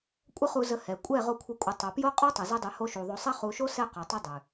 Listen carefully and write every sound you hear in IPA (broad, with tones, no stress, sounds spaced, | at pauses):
kʷʼ ə˦ χ u˧ z ə˧ h ɛ˨ kʷʼ ɛ˦˨ ʁ o˦ kʷʰ ə˦˨ kʷʼ ə˨˦ tˤ o˨ p j o˦ qʼ o˦ tˤ ʊ˨ z ʉ˧ dˤ ʉ˨ h o˧ ʃ u˨ ðˤ o˧ sˤ ɛ˦ χ u˧ ʃ o˦ s ɛ˦ q o˨ tˤ ə˦ dˤ ʉ˨